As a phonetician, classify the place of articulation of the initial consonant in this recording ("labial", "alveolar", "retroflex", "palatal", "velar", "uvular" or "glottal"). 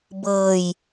labial